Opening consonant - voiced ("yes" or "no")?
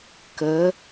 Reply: no